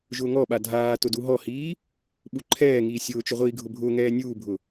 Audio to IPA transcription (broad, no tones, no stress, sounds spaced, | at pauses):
ʒ ʊː ŋ ɔ ɓ a dʱ aː t ʊ d u ɦ ɔ h iː | ɓ u ǃʰ ɛː ŋ iː sʲ ʊː t͡ʃ ʊ ʁʷ iː ɡʱ ʊ bʱ ʊː ŋ ɛː nʲ uː bʱ ʊ